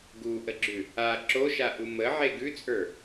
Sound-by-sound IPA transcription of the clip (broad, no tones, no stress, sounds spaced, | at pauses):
ɡ u ʔ ə ɡ͡ǁ ʉ | a ǁ o ʃ a ʔ u m ə ʕ e ɡ ʉ t͡sʼ ə˞